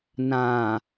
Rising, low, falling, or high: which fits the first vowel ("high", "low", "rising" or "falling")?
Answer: low